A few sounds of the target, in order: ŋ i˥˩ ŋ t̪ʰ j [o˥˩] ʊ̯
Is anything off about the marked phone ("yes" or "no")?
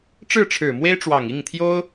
yes